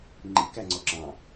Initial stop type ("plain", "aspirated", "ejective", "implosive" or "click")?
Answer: click